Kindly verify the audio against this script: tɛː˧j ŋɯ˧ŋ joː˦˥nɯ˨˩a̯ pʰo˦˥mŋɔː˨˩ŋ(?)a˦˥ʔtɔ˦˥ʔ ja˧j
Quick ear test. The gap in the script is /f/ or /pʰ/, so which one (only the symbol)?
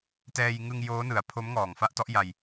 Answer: f